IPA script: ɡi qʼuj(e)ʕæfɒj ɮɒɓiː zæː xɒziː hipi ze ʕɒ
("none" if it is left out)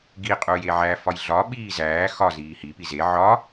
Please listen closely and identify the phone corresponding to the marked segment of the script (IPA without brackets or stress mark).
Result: e